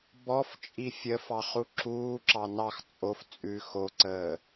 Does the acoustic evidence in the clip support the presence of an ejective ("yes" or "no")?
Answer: yes